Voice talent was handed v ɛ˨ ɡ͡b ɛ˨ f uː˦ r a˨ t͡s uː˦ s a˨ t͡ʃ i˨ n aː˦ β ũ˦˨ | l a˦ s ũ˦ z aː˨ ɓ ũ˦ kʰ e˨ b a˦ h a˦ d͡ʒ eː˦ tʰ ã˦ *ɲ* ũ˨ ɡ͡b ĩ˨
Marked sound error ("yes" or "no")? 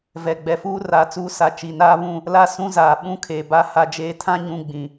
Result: no